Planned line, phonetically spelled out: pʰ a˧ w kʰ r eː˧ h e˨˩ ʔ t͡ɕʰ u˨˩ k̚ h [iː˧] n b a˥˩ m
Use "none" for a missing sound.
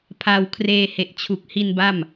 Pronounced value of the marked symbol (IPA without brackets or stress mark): i˧